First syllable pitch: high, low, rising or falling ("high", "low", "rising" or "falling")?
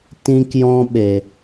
high